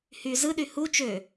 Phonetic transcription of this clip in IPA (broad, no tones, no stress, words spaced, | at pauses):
hy zɯɗy hu t͡ʃø